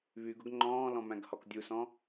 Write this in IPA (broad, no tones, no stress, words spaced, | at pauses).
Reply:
βyɡ ʊɡŋ͡ǃɔ̃ːlɔ̃ mæ̃ɡhɔkdʲusɔ̃